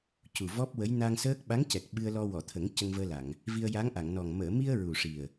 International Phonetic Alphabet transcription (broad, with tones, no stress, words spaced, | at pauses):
cu˨˩vɔ˦˥p̚wə˧˥j na˧ŋsəː˦˥k̚ ɓa˧˥ŋcɛ˨˩k̚ ɓɨ˧ə̯lɔ˧ wɔ˨˩˨t̪ʰə˨˩˦ŋ cə˧ŋvəː˧la˨˩˨ŋ | vi˧ə̯ja˧˥ŋʔa˨˩˨ŋnɔ˨˩ŋ məː˨˩˨mi˧ə̯ ɹu˨˩ʂi˨˩ə̯